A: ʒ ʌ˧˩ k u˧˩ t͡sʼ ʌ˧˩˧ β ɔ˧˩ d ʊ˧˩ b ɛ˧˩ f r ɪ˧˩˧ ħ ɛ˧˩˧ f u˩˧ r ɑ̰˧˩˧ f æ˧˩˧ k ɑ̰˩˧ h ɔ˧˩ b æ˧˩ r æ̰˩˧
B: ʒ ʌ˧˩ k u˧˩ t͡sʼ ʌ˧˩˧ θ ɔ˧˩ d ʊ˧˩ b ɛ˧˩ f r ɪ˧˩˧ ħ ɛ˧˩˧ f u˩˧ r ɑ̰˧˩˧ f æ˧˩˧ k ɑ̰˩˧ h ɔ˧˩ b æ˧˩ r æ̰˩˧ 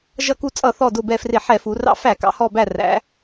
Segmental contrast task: B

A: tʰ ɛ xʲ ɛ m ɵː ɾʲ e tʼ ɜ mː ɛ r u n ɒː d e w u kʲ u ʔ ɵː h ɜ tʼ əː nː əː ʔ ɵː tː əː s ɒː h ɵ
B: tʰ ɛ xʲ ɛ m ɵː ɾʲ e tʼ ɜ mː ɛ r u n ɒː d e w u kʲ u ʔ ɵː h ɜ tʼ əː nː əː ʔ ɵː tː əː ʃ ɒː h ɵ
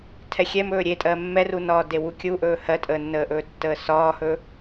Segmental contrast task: A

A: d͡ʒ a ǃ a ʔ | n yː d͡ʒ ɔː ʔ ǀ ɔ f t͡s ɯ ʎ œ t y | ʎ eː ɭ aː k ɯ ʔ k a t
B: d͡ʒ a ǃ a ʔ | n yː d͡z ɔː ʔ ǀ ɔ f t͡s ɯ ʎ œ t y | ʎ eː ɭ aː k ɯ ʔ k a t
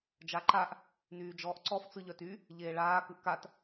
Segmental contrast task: A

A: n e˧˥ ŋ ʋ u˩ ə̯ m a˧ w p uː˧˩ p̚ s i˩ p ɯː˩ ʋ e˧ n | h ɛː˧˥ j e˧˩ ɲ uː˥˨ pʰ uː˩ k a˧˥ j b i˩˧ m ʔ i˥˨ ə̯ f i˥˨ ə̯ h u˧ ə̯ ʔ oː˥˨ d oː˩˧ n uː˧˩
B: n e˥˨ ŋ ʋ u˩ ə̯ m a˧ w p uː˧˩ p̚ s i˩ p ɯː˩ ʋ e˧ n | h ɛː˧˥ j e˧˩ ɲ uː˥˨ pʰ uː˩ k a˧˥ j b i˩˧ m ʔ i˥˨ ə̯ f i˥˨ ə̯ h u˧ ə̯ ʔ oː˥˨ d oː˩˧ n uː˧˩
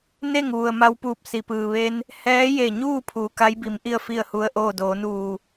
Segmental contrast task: B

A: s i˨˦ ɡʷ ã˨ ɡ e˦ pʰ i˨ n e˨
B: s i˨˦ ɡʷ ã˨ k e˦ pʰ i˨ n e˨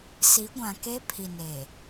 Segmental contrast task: B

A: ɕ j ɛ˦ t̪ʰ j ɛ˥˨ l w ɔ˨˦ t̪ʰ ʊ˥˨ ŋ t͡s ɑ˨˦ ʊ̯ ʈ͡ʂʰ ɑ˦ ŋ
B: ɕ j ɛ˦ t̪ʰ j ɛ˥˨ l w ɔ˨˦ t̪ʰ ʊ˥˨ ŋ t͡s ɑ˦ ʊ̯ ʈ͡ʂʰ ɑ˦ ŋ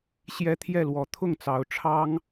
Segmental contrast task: A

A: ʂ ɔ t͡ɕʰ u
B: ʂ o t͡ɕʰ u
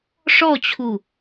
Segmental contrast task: A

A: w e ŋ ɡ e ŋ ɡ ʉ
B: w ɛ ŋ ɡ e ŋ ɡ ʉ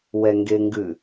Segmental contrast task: B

